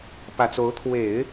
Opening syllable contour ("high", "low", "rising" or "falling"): low